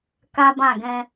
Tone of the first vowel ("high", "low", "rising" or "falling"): high